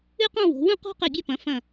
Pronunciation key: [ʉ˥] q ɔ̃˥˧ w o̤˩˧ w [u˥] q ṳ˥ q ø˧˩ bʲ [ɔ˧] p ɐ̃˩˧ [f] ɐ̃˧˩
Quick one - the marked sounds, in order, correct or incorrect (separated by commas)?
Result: correct, incorrect, correct, correct